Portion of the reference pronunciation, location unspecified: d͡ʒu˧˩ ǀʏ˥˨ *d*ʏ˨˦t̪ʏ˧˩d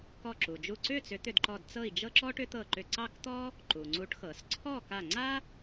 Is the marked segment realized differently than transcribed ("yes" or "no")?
yes